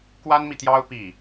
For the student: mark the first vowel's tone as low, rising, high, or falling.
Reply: high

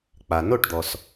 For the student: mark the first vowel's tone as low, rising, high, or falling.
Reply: low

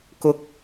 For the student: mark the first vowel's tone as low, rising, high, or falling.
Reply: rising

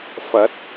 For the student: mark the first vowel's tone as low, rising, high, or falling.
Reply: rising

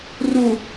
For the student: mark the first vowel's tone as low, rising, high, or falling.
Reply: low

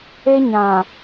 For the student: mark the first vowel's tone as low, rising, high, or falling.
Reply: high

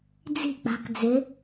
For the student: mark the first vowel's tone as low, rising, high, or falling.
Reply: falling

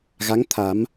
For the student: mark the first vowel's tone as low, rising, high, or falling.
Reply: rising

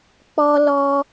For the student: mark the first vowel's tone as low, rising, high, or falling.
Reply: high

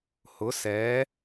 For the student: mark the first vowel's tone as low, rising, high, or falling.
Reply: rising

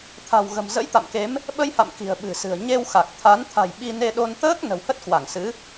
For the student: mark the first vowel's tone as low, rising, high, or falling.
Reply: low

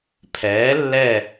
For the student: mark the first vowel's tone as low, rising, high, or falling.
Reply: rising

